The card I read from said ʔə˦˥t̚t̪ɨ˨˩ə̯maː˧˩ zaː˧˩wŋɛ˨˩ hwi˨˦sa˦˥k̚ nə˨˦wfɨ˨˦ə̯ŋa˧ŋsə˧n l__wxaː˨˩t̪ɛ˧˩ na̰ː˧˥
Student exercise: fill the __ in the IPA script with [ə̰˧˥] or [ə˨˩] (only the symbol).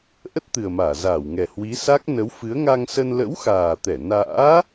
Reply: ə̰˧˥